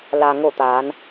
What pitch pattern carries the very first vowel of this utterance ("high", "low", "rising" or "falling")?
low